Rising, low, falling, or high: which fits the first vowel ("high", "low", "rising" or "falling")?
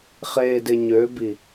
low